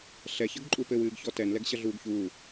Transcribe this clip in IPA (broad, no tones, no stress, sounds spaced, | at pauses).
ɬ ɛ ç ɐ ɡ ǃʼ u p ɘ w ɨː ɡ ç ɔ t ɛ n l ɛ ɡ ɕ ɐ ɮ uː ɡ ç uː